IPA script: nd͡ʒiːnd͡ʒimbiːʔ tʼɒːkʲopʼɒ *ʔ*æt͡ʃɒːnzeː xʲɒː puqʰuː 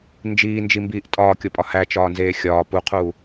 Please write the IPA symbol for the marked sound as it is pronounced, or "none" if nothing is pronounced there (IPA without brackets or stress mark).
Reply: h